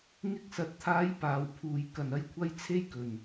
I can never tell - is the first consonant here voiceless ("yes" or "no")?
no